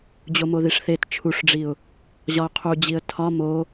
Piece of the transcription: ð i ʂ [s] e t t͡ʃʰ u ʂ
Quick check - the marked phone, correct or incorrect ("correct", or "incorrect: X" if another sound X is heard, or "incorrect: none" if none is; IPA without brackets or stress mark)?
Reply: incorrect: θ